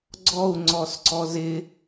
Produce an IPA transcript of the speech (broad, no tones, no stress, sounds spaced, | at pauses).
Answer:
ɡ͡ǀ ɔ u̯ ŋ͡ǀ ɔ s ǀ ɔ z ɪ